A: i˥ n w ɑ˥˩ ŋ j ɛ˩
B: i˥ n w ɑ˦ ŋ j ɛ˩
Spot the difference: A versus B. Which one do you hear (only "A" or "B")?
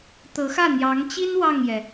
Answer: A